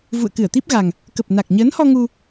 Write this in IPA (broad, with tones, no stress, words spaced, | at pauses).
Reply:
vṵ˧˨ə̯kɨ˧˩ə̯t̪i˦˥p̚ɣa˨˩ŋ | kə˨˩p̚na˨˩k̚ ɲəː˨˦nhɔ˧ ŋu˧